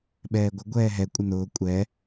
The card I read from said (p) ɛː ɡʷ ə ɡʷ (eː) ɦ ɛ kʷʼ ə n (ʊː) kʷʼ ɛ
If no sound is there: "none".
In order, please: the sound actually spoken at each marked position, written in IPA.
ɓ, ɛː, ʊː

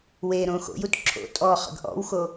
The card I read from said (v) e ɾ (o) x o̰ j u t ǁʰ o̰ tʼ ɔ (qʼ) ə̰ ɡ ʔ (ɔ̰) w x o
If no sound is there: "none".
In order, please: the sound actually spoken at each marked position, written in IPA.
w, õ, χ, ɔ̰

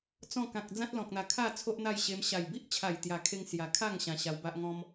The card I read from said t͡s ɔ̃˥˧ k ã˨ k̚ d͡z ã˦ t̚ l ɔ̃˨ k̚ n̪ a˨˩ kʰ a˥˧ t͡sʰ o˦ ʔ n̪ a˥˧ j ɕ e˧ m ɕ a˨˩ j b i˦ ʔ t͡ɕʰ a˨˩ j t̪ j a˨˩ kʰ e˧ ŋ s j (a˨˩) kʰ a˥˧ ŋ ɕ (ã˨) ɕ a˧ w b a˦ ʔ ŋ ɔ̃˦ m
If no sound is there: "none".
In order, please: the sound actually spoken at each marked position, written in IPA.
a˨˩, ã˧

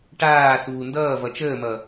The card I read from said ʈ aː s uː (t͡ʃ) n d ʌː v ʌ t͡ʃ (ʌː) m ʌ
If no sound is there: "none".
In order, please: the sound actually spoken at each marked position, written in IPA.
none, əː

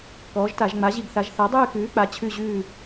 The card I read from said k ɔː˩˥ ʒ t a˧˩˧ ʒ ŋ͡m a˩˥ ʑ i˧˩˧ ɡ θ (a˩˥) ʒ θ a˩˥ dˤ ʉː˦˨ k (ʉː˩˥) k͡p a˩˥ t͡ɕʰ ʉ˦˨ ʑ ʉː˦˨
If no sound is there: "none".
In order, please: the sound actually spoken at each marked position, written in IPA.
a˩˥, ʉː˩˥

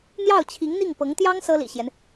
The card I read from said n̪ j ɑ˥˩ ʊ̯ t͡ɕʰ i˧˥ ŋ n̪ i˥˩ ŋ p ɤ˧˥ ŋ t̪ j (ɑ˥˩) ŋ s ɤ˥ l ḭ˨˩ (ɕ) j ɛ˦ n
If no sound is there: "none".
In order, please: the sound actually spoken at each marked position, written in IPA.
ɑ˥, ɕ

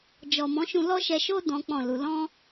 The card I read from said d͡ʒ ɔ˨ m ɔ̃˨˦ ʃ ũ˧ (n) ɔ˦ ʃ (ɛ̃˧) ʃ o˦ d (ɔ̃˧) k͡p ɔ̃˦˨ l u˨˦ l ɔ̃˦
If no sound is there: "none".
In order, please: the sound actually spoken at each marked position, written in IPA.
l, ɛ˧, ɔ̃˦

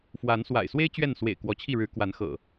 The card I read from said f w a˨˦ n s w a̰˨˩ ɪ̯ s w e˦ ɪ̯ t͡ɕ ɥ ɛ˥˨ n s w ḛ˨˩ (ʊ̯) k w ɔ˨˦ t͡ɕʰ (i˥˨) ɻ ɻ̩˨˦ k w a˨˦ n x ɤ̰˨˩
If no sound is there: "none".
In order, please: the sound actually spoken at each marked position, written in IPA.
ɪ̯, i˥˨

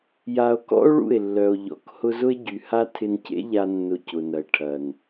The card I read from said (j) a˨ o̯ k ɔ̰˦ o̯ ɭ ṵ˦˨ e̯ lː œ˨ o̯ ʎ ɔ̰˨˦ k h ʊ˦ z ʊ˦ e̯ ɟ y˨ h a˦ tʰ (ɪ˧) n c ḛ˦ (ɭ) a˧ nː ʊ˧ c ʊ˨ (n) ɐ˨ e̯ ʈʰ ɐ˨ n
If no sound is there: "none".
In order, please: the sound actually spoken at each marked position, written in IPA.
j, ɪ˧, ʎ, n

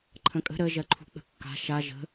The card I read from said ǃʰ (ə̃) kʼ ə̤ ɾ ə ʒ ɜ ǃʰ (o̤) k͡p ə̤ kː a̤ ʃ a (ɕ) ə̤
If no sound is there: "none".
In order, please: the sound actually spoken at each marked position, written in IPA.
ə̃, ṳ, ʒ

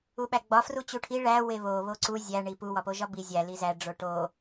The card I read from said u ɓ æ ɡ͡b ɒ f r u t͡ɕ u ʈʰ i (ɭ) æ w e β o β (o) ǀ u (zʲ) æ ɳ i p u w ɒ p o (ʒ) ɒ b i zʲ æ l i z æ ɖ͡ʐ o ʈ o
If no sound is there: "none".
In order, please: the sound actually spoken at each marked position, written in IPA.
ɭ, o, zʲ, ʒ

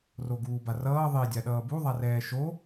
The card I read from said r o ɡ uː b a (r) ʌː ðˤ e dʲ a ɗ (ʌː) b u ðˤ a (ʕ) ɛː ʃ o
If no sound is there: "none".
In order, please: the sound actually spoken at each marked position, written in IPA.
r, ʌː, r

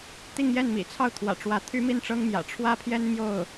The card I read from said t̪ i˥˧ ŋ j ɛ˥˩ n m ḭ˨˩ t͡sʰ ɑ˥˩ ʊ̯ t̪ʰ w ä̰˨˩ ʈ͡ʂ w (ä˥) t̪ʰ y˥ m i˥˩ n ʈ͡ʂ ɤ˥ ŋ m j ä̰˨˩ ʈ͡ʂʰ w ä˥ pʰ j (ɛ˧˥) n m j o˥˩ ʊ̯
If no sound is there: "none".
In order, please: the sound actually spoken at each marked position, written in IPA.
ä˧˥, ɛ˥

